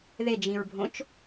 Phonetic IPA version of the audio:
ð e d͡ʒ ĩ ɹ bʱ õ t͡ʃ

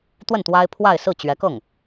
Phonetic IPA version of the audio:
t̪ w ə˥˩ n t̪ w a˥ ɪ̯ pʰ w a˥˧ ɪ̯ s ɹ̩˥˩ t͡ɕ ɥ ɛ˧˥ k ɤ˥˩ ŋ

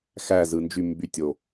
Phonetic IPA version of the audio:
x æ z ɯ n d͡ʒ y m b y tʲ o

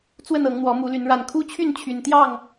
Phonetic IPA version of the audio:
t͡s w ə˥˨ n ɤ˨˦ ŋ n̪ w ɔ˨˦ m u˨˦ l y˨˦ n ɻ a˨˩ n kʰ u˦ t͡ɕʰ y˥˨ n t͡ɕʰ y˨˩ n t̪ j ɑ˥˨ ŋ

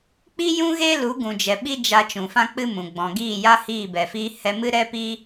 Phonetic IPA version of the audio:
k͡p i˦ j ũ˦ ɣ e˦ l u˨˦ ɡ ũ˨ d͡ʒ ɛ˨ ɓ i˦ d͡ʒ a˧ t͡ʃ ũ˨ f ã˦ k͡p ɨ˦ m ũ˨ ɡ͡b ɔ̃˨ ɡ iː˦˨ j a˦ h iː˦˨ b ɛ˨ f iː˧ h ɛ˧ m ɨ˦ ɾ ɛ˦ p i˦

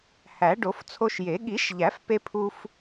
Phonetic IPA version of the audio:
h æ˨˩˦ ɖ o˨˩˦ f t͡sʰ o˧ ʃ j e˨˩˦ ɠ i˨˩˦ ʃ ʎ æ˨˩˦ f p e˧ pʰ u˧ f

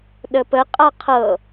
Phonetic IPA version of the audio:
ɗ ə p ə qʼ a qʰ ɤ

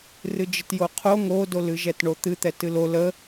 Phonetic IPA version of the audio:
r ɨ d͡ʒ ɨ t j o qʰ o ŋ o d o l ɨ ʒ ɛ t ɳ o t̪ ɨ t̪ ɛ t ɨ l o l ə

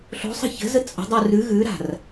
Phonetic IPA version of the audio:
ɬ o̤ sˤ ə̤ ç ə̤ z ə t͡sʼ ə̤ dˤ u r ʉ ɣ ʉ ɾ a̤ r

